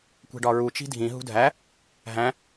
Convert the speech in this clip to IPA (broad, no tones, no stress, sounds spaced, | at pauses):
kʷ e̤ ɖ ɒ ɹ u t͡ʃ i̤ dʱ ĩ ɦ ṳ dʱ æ | ɦ æ̃